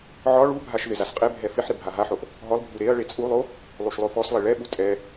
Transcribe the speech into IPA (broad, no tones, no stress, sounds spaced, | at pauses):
ʕ ɒ ɭ u bʱ a ʃ ð ɪ z a s qʼ e bʱ ɛ f ɪ ħ ɾ ɪ bʱ a ɦ a ħ o ʔ | ɦ ɔ lˠ bʱ u ɾ e ɐ̯ ɭ e t͡sʼ u lˠ o | lˠ u ʃ lˠ o f ɔ s lˠ e ɭ ɛ ɓ u tʼ ɛ